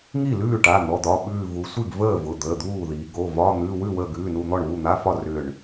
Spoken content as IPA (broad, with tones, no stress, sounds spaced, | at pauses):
ŋ i˥˩ l ʉː˥˩ ʈ a˩˧˩ n̪ ɔ˩˧˩ d̪ ɒ˩˧˩ ɓ ʉː˧˩ v u˩˧ sʷ i˥˩ ɡ v əː˥˩ v ʊ˩˧˩ d̪ əː˩˧˩ d̪ uː˥˩ ð i˩˧ ɡ o˩˧˩ v ɒ˧˥˧ n̪ ʉ˧˥˧ w ʉ˥˩ w əː˧˩ ɡ ʉː˩˧˩ n u˧˩ n̪ ɔ˥˩ ɳ β u˥˩ n̪ a˧˥˧ f ɒ˥˩ r ʏ˧˩ ɳ